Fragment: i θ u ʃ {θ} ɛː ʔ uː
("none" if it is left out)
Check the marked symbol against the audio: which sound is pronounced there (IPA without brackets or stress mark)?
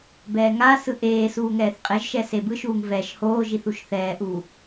θ